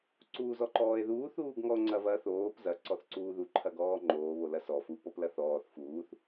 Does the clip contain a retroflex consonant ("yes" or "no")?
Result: no